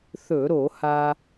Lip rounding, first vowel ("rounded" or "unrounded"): rounded